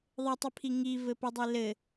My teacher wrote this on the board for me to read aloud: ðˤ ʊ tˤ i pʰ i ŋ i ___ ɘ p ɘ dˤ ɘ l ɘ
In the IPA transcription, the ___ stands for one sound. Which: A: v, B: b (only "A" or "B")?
A